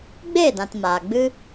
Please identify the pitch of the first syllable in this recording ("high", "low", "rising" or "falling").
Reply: falling